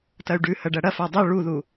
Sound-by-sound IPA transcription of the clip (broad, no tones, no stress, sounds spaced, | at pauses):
t ɐ y̯ ɖ ʉ h ɐ ɖ ɐ ɽ ɐ f a dˤ ɵ ɭ u ð u